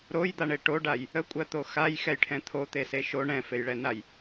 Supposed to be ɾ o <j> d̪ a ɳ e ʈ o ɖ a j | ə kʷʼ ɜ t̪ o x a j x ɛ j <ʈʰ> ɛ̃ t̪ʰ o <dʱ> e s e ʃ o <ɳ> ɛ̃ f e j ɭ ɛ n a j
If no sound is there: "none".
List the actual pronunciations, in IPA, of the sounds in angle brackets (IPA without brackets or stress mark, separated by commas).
j, ʈʰ, t̪, ɳ